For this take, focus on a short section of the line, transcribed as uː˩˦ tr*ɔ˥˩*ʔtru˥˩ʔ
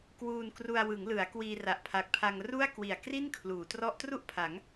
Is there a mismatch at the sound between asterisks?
yes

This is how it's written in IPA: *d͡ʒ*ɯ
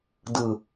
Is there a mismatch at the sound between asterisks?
yes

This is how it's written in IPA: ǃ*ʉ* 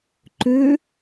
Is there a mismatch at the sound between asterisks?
yes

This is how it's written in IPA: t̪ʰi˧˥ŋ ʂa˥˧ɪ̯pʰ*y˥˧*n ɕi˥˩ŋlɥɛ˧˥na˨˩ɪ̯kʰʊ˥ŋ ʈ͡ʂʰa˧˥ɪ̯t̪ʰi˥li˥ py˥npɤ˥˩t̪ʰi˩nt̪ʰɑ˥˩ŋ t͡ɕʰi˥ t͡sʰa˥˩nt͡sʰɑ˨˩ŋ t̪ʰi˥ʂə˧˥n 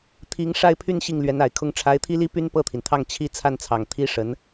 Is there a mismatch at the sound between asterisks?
no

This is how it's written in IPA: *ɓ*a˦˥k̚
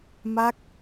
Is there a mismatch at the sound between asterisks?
yes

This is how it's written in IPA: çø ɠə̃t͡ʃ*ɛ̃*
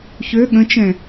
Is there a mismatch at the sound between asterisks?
no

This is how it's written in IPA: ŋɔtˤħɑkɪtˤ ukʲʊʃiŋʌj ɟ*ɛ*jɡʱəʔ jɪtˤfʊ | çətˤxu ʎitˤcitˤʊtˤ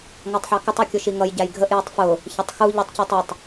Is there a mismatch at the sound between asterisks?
yes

